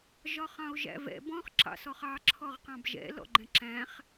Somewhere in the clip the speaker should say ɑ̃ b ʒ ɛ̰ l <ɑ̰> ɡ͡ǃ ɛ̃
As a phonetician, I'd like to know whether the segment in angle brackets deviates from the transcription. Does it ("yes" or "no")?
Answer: yes